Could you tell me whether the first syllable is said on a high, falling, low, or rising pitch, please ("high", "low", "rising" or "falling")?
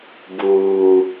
low